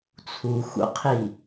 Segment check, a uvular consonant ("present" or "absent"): present